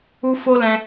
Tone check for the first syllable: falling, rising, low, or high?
high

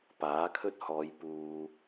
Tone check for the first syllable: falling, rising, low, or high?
rising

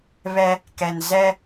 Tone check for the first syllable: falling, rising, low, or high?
high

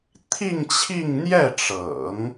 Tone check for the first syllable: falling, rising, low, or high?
falling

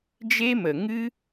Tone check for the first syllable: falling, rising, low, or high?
high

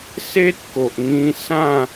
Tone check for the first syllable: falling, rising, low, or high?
high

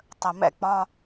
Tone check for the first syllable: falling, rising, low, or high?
low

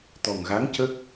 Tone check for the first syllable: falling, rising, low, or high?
low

